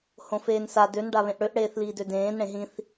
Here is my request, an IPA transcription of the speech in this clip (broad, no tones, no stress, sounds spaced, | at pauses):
h õ f eː n s a d ø n ɖ a β ẽ ʔ ɽ ø ʔ ɽ eː θ l iː d ø d ẽː n ɽ ẽ ɦ ĩ θ